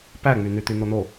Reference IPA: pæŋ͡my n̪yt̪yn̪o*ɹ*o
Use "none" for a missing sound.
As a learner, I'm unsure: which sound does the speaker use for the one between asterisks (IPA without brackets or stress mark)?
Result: n̪